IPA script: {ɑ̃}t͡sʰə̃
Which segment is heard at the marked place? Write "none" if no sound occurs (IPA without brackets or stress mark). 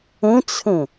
ə̃